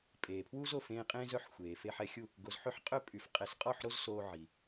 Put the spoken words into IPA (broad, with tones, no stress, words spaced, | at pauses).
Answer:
pʼeː˩pʰwu˥zo˥˩fẽː˧ qʼẽː˥zœ˥˩ħxʷeː˩ fe˧ħɛ˧xʲu˥˩ | ɡo˧z ħø˥ħqʼœ˥pʼy˩˥f qʼɛ˩˥sqʼɔ˥˩ħ ɾo˥zsoː˧ ʕi˩